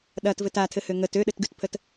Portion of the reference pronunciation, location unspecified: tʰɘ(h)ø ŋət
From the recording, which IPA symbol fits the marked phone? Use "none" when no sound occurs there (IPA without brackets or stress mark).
h